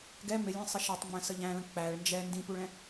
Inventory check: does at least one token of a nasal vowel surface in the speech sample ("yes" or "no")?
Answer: yes